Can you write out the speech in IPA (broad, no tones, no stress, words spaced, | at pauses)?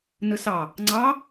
nɯsɑ | ŋ͡ǀɑ